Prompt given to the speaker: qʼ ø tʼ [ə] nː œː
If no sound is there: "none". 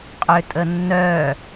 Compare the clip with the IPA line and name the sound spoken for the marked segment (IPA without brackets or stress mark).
ə